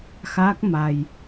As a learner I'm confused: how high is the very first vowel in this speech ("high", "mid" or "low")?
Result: low